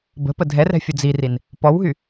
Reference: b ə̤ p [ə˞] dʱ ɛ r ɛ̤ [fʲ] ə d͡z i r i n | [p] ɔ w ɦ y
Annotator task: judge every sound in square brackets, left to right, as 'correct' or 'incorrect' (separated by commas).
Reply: incorrect, correct, correct